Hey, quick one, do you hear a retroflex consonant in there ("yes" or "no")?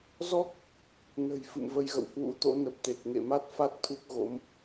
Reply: no